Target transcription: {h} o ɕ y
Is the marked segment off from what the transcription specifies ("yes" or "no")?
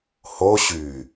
no